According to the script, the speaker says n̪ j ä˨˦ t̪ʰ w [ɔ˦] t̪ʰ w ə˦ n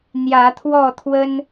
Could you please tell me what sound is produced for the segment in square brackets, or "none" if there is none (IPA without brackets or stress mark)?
ɔ˥˨